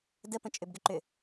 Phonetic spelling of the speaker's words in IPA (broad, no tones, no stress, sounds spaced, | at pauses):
d ə p ə̃ t͡ʃʼ ʏ b ɡ ʏ ǃ ʏ